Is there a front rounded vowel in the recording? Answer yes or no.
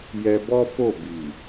no